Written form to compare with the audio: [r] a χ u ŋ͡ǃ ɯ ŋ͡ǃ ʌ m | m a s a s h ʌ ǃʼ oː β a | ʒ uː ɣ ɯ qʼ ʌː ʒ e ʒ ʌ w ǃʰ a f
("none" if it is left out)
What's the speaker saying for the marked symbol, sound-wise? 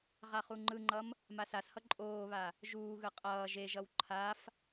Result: ʁ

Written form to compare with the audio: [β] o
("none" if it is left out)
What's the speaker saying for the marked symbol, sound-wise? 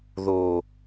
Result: ð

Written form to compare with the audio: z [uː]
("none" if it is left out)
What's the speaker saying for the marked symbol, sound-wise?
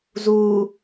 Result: uː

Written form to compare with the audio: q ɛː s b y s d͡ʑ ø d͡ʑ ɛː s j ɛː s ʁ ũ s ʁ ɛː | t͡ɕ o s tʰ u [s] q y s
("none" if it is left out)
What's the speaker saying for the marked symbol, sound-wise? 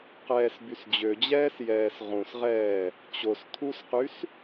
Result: s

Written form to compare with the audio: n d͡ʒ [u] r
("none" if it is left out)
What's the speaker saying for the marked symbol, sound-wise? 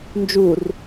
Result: u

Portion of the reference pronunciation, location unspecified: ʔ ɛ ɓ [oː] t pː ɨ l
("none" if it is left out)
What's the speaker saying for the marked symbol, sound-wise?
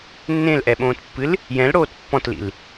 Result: õː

